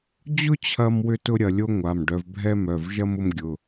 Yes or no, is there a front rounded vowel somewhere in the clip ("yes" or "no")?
yes